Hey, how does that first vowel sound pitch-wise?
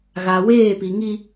low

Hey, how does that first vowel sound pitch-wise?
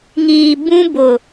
low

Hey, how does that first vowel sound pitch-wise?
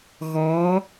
rising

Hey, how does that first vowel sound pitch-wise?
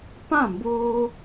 falling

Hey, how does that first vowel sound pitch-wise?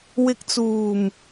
low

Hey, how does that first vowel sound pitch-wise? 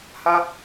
high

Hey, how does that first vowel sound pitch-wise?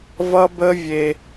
high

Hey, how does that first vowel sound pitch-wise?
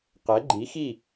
rising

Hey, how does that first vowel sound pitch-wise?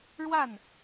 falling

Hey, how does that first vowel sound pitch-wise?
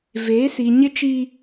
rising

